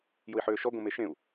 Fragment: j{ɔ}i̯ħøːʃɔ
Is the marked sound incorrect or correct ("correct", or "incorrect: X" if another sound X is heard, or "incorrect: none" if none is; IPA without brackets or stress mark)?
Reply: incorrect: ʊ